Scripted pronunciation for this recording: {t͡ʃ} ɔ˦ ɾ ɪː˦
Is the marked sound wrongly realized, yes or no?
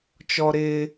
no